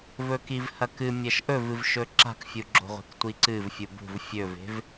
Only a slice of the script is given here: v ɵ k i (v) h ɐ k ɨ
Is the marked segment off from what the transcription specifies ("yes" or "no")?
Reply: no